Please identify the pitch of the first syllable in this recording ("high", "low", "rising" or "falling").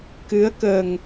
rising